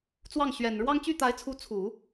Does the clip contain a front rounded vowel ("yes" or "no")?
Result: yes